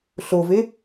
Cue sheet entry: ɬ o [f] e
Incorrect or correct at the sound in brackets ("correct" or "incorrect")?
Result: incorrect